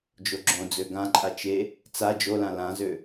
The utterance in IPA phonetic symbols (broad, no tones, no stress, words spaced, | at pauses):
d͡ʒoɡ͡ǁõd͡zø ɡãǃʼa t͡ʃe | t͡sa d͡ʒolã lãzø